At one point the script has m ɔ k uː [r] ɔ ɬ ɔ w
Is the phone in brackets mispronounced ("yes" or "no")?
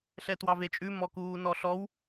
yes